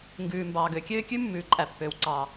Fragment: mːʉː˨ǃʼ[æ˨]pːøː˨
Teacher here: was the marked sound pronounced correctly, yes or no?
yes